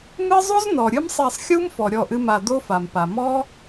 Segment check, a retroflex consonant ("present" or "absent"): absent